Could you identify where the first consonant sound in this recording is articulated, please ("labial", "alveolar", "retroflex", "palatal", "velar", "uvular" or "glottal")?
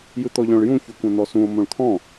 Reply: palatal